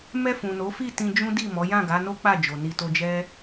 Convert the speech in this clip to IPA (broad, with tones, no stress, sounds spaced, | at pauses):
m ɛ˧ f ũ˨ n o˨˦ f i˦˨ t ĩ˧ d͡ʒ ũ˦ d i˦˨ m ɔ˨˦ j ã˦˨ ɡ a˨˦ n o˦ k͡p a˦˨ d͡ʒ o˨ n i˨ t o˧ d͡ʒ ɛ˦